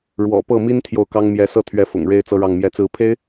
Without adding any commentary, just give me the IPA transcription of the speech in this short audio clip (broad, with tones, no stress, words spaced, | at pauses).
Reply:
ɻwɔ̰˨˩pɤ˥˩mi˥n t̪ʰjo˥˩ʊ̯kɑ˥ŋmjɛ˧˥ sɤ˥˩t̪ʰɥɛ˧˥ fʊ̰˨˩ŋ ɻe˥ɪ̯t͡sɤ˥ɻɑ˥˩ŋ mjɛ˧˥t͡sɹ̩˧˥ pʰe˥ɪ̯